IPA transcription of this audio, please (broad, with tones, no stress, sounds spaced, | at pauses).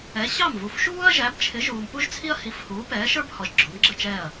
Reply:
ɛ˨˥ ɕ ɑ˥˨ m v u˨˥ f ʃ uː˥ ɐ̯ ʒ æ˨˥ b t͡ʃʰ ɪ˨˥ ʒ uː˨ m p u˥ ʒ t͡sʰ i˥ ɐ̯ h i˨˥ f h uː˨˥ p ɛː˨˥ ʃ ə˞˥ b h ɔ˨ ʒ ɡ͡ǁ ʊ˨˥ m ɡ͡ǁ ə˥˨ t͡ʃ ɛː˥˨ ɐ̯